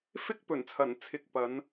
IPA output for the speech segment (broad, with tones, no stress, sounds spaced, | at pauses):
f ɪ˧ k̚ p ɵ˨˩ n t͡sʰ ɐ˨˩ n t͡sʰ ɪ˨ k̚ p ɐ˨˧ n